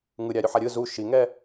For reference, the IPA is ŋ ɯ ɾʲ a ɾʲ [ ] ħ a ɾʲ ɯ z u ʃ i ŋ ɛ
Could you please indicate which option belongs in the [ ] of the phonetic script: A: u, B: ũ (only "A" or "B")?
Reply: A